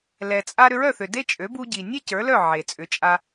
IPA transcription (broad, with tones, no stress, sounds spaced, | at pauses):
l ɛ˩ t͡sʼ a˧ ɾ ʏ˧ ɹ œ˥˩ θ ʏ˩ d e˥ t͡ʃʼ ø˩˥ b u˧ ɟ i˩ nʲ ɛ˥ c ə˞˩˥ l œ˥˩ ʕ e˩ t͡sʼ ʏ˩˥ t͡ʃʼ a˧